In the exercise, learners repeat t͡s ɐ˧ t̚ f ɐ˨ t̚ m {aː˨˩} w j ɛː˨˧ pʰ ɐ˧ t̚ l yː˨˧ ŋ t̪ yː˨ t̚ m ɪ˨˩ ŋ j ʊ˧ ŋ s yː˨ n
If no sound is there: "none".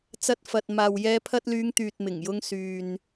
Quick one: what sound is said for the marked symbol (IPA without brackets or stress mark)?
aː˨